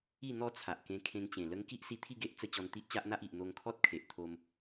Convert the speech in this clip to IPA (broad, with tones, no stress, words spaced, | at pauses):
i˥˧ n̪ɔ˥˧t͡sʰa˨ʔkẽ˧ kʰẽ˧ŋt͡ɕẽ˨˩lə˦ŋ ki˦ʔsi˧t̪ʰi˥˧ɡe˦ʔ t͡sə˧ t͡ɕɔ˧nt̪i˦ʔt͡ɕa˦ʔn̪a˦ʔ i˨ʔ n̪o˧ŋkʰɔ˦t̚kʰe˨ʔt̪ʰo˧m